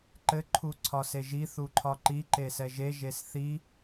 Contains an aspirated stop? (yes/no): yes